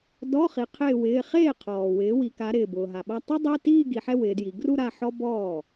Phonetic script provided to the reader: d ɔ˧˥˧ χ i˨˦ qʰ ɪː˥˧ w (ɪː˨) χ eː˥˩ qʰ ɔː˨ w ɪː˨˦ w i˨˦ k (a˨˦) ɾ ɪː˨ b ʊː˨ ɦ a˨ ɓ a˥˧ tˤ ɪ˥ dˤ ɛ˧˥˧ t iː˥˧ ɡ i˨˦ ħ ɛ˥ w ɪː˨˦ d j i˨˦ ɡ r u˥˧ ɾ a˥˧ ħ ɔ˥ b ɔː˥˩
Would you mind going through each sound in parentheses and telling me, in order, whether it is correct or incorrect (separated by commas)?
incorrect, correct